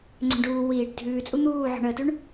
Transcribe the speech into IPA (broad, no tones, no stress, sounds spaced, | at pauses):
ŋ͡ǀ ɛ̤ ɳ ɖ uː w iː ɖ dʱ ʉː t͡sʼ u n̪ uː ʕ ɔ̤ ɳ əː t ʉ ɳ